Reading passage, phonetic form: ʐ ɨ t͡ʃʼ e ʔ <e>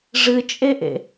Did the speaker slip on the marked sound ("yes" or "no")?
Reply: yes